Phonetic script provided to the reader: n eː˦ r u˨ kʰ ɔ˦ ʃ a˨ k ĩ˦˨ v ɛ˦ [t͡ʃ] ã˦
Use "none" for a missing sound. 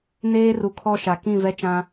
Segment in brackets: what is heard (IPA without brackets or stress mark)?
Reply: t͡ʃ